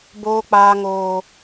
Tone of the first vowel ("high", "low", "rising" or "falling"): high